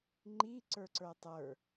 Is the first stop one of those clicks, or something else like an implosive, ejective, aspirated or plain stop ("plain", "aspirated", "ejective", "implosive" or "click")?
click